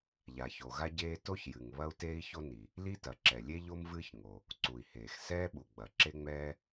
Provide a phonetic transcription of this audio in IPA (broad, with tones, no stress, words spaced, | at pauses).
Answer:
ʎa˩ço˩ɣa˥ ɟeː˥ to˥çjɨ˩ŋ βɐ˥u̯teː˥i̯ço˥ni˩ | li˥tɐ˩ ǁɛ˩lʲe˥ ʎo˥mvɨː˥ç ŋo˩ | ǀu˩i̯heː˩x sɛː˥ɓu˩ɡ͡bɐ˩ ǁe˥ŋ͡mɛː˥